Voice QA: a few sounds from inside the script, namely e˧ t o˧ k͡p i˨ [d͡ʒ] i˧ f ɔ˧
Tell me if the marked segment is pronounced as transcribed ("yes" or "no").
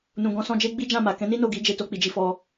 yes